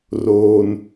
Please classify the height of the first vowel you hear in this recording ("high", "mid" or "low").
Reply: mid